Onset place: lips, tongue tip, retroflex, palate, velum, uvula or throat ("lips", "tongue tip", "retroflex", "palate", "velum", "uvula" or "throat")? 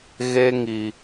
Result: velum